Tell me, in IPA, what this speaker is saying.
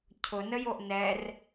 cʰ ʊ n ə j o ʔ n ɛ r

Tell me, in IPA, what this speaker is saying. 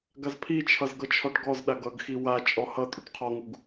ɡ a z pʰ i t͡ʃʰ ʌ z ɡ ʌ t͡ʃʰ ɔ ʈ ɡ ɔ z ɗ a ɡ ʌ ɡ x i w a t͡ʃʼ ɔ h ʌ tʼ u ʈ qʰ ɔ ŋ u ɡ

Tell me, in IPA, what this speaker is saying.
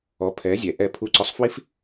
ɔ˨˦ pʰ ɛ˨˦ zʲ ɛ˨ ʔ ɛ˧ pʰ u˧ ǀ ɔ˧ sˤ f w i˦ f

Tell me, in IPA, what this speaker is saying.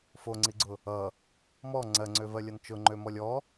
f o ŋ͡ǀ i ɡ͡ǀ ʊ | ʌ | m ɔ ŋ͡ǀ ɜ ŋ͡ǀ ø v ɜ lʲ ʌ n t͡ʃ ʊ ŋ͡ǃ ø m ɔ lʲ ɔ

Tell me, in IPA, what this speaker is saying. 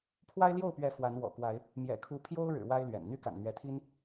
pʰ w a˦ ɪ̯ l j o˥˨ ʊ̯ p ɥ ɛ˨˦ f w a˨˦ n w ɔ̰˨˩ k w a˨˦ ɪ̯ | m j ɛ̰˨˩ kʰ u˨˦ pʰ j o˦ ʊ̯ ɻ ɻ̩˨˩ w a˦ ɪ̯ l ɥ ɛ̰˨˩ n n̪ y˦ k a̰˨˩ n n̪ ɥ ɛ˨˦ t̪ʰ i˦ n

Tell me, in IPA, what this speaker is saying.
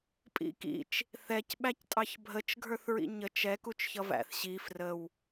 pʼ ḭ k ḭ t͡ʃ | θ ɛ c ɓ æ c tʼ ɑ ç bʱ ə t͡ʃ ɡʱ ə˞ θ ɹ ḭ ɲ ə t͡ʃ ɛ k u t͡ʃ ç ʌ v æ̰ θ ɕ i f r ə w

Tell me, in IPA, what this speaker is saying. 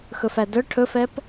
x ɵ f æ d œ ʈʰ ɵ f ɛ p

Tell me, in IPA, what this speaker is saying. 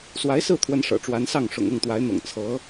s w a˧˥ ɪ̯ s ɹ̩˥˩ t̪ʰ w ə˧˥ n ʂ ɤ̰˨˩ ʈ͡ʂ w a˧˥ n s ɑ˥˩ ŋ ʂ ʊ̰˨˩ ŋ ɤ˥˩ ŋ t̪ w a˧˥ ɪ̯ n̪ ɤ̰˨˩ ŋ t͡sʰ ɤ˧˥

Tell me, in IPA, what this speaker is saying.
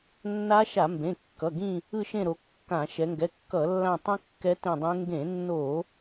nː a˦˥ ʃ a˧˩˧ m b ẽ˩˧˩ kː ʌ˩˧˩ ɡ ĩ˦˨ | ɯ˦˨ ʃ ẽ˦˨ ɾ o˩˧ kː ã˧˩˧ ʃ ɛ˩˧ ŋ ɡ ɛ˩˧˩ kː ʌ˧˩˧ lː ã˦˨ tˤ ĩ˦˥ kː ɛ˦˥ t ẽ˦˨ dˤ ẽ˦˥ ŋ ɡ ẽ˧˩˧ nː o˧˩˧

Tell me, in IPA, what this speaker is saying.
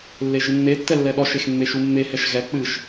lː e ʒ ɨ nː e tː ɛ lː ɛ ɗ ɔ ʃ e x mː e ʃ u mː e h ɛ ʃ ɣ ɛ k͡p ɨ ʃ

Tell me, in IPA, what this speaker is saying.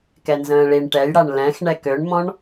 k ɛ n z ə̃ː ɭ i ɳ ʈ ɛ j ɽ a ɳ l ɛ̃ x ɳ ɛ k ø ɳ m ɔ̃ ɳ

